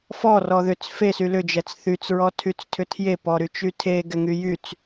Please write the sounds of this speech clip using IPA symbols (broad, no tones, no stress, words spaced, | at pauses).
fɔ rɔðʏt͡s fesy lʏd͡ʒɛt͡s θyt͡sɹɔ tʰyt͡stʰʏtʰje pɔɾyt͡ʃytʰe ɡɛŋyjyt͡s